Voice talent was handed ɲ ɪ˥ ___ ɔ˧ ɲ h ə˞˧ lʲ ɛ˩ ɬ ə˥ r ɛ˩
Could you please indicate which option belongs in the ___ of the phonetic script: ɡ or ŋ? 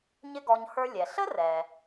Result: ɡ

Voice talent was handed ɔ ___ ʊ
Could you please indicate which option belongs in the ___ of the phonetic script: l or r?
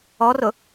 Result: r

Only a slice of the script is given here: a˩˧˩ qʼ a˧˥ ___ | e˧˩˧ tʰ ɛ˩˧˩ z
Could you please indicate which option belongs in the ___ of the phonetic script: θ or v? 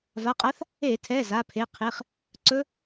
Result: θ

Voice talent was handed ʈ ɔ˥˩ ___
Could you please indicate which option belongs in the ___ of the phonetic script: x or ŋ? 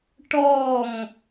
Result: ŋ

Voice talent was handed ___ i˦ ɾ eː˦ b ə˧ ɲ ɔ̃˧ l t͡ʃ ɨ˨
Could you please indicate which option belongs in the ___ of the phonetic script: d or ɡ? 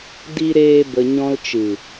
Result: d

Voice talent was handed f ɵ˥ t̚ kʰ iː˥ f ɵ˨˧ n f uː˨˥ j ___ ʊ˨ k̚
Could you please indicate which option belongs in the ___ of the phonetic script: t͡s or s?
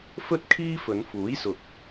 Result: s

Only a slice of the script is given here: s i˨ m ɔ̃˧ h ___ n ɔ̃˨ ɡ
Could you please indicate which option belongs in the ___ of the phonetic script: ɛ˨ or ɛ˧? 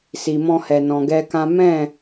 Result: ɛ˨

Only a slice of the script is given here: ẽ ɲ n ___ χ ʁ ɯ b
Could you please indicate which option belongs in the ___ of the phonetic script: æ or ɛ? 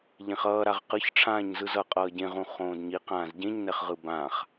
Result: ɛ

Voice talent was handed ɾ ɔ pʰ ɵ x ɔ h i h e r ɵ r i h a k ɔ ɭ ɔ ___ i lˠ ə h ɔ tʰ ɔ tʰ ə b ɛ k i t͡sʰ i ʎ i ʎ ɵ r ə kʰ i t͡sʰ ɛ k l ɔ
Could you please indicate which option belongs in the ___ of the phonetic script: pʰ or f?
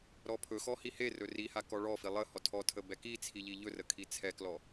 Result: f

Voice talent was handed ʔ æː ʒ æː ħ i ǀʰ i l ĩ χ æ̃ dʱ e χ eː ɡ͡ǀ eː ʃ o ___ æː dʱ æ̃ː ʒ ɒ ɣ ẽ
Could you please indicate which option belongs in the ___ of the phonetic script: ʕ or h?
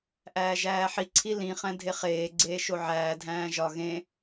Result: ʕ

